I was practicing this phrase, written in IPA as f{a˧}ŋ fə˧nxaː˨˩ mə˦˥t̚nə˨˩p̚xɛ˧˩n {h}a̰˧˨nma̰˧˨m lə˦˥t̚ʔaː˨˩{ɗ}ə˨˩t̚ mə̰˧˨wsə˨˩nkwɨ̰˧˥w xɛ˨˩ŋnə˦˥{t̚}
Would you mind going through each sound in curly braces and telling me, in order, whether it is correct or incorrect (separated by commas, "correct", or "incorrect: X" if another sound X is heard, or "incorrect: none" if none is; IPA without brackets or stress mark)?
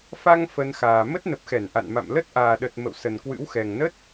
correct, incorrect: ʔ, correct, correct